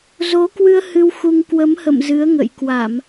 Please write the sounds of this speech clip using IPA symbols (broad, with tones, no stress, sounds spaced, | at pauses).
z o˨˦ k w ɨ˧ ə̯ h ɨ˧ w x u˧ ŋ k w ə˨˦ m h ə̰˧˨ m z ɨ˨˦ ə̯ ŋ ə̰˧˨ j k w a˧˩˨ m